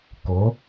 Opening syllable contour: rising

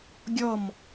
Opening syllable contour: falling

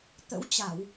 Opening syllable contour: rising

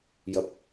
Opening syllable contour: low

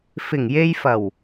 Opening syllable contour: low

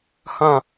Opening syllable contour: falling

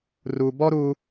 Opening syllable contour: low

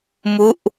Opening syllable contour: falling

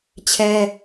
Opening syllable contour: high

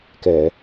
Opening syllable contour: low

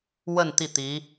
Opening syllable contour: falling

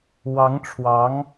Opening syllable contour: rising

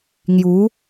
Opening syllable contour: rising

